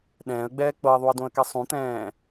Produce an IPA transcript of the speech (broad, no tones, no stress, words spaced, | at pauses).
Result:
ɗɛ̃ːə̯ɡ͡bɛː k͡pɤɪ̯ðˤuə̯dõə̯kɛ sˤũt̪ɛ̃ː